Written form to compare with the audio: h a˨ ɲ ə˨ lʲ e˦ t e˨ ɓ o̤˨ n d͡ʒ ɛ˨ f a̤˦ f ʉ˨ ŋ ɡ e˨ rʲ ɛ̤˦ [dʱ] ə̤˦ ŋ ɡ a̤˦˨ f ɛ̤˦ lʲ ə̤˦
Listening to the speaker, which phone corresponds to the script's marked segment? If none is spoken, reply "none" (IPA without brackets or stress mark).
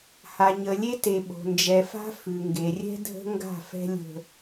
dʱ